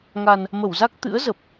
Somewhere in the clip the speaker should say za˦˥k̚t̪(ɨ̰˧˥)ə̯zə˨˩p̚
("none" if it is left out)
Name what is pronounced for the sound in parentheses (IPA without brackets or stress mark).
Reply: ɨ̰˧˥